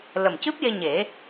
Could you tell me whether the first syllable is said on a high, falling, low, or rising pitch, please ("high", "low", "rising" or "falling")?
low